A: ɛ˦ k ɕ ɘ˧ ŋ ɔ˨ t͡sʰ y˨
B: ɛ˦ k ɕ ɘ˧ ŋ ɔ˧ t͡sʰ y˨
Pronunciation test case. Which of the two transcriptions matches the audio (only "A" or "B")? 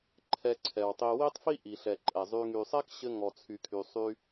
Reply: A